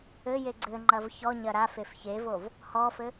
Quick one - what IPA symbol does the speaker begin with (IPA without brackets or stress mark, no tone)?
ɘ